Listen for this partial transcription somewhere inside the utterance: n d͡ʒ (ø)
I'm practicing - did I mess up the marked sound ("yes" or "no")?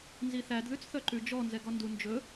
yes